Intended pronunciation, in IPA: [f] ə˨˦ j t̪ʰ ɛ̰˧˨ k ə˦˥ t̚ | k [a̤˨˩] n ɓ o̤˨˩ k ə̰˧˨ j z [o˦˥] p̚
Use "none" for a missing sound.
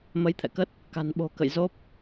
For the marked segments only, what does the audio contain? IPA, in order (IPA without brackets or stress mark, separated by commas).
m, a̤˨˩, o˦˥